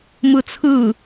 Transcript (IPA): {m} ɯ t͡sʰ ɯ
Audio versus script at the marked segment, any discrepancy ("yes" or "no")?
no